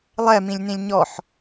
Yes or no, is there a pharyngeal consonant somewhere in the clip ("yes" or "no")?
yes